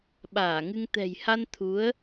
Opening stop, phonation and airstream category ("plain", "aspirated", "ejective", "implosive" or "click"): implosive